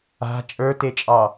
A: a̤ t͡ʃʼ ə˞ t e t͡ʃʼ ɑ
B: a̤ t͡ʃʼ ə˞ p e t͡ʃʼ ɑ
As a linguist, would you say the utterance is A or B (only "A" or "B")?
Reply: A